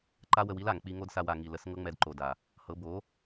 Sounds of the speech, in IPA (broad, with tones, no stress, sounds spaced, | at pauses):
ǃ a˦ w ə˧ w i˦ l a˨ ŋ k͡p i˧ ŋ o˦ d s a˧ w a˨ ŋ i˨ l ə˨˦ s ŋ ɤ˦ ŋ͡m ɛ˧ d ǃ o˨ d a˨ | h ɤ˨˦ b o˨˦